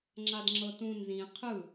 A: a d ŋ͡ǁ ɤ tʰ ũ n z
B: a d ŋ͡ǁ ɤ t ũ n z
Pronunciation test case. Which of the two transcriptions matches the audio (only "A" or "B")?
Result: B